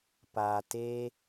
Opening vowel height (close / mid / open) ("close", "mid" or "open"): open